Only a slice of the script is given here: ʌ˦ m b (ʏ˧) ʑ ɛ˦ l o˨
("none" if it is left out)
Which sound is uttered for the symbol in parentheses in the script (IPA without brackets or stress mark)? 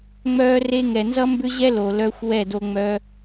ʏ˦